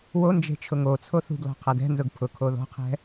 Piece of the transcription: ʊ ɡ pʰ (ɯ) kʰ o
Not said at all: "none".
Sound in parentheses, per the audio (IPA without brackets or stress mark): ʊ